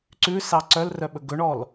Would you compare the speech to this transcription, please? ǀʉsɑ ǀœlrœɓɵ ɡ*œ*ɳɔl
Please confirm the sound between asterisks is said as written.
no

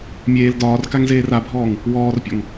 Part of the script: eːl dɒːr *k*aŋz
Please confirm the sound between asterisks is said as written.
yes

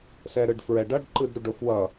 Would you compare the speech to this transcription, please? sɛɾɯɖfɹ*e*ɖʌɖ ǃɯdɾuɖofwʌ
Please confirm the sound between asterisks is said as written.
no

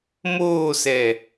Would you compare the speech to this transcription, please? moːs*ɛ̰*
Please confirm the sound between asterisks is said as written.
no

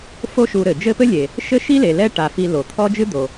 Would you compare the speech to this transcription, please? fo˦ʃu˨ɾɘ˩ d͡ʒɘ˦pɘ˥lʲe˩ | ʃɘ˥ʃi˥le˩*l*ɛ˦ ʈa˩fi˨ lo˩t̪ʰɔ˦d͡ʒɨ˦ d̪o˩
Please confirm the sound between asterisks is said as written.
yes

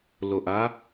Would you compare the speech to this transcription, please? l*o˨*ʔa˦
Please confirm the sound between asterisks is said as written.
yes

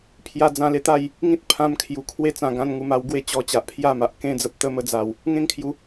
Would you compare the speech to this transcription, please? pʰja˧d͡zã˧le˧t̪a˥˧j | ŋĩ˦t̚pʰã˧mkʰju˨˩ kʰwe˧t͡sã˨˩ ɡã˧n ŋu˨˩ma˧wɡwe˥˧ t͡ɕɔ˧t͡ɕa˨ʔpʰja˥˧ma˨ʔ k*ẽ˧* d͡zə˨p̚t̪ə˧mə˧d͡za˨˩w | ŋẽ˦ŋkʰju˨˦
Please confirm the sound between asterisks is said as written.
yes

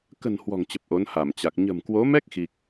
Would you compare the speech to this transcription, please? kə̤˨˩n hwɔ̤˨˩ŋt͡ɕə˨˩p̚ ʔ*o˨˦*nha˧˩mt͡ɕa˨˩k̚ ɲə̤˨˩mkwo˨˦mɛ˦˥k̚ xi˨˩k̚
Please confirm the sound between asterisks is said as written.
yes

